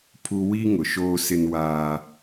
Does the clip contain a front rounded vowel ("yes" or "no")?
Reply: no